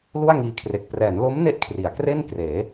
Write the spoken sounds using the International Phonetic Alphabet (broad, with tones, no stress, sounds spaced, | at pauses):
l u˥˩ a̯ ŋ iː˧ kʰ r e˨˩ k̚ p r ɛː˩˦ n l o˦˥ m n e˦˥ ʔ kʰ r i˩˦ a̯ k r e˥˩ n k r eː˩˦